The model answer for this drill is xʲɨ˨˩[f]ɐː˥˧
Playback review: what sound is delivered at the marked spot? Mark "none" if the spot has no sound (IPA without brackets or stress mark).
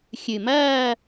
m